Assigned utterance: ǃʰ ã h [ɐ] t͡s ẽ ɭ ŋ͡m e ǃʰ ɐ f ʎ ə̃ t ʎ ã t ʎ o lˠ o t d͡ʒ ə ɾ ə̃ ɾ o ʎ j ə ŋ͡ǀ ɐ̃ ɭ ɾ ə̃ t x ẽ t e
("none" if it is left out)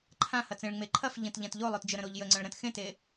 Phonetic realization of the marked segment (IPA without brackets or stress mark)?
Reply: ɐ